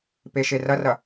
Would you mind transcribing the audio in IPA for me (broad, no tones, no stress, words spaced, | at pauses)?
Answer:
peʃerɐrɐ